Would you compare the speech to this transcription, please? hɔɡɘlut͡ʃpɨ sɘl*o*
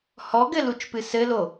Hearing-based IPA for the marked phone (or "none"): o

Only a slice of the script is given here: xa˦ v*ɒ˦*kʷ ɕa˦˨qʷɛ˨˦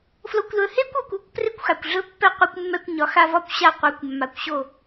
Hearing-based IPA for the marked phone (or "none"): ɒ˦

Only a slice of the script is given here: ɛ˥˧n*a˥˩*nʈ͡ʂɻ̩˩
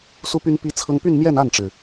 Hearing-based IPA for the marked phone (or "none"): a˥˩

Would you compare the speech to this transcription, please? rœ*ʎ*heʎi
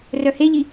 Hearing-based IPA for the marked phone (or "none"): none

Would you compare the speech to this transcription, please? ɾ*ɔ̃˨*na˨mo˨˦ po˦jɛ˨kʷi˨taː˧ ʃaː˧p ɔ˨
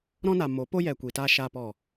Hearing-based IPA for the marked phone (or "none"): ɔ̃˦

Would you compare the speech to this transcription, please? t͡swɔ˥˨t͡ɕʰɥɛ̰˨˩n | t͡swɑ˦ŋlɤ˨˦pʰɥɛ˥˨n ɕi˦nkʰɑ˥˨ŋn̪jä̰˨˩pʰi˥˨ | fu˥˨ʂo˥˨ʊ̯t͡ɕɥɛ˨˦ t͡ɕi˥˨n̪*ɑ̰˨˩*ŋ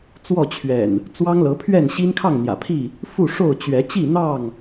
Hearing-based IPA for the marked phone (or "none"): ɑ˥˨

